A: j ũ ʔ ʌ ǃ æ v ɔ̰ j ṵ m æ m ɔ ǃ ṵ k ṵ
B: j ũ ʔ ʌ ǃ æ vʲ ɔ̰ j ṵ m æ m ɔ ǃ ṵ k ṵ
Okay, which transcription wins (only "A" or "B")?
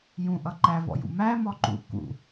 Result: A